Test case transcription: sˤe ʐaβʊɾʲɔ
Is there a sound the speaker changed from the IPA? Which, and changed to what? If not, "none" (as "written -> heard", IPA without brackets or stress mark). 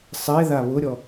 ʐ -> ð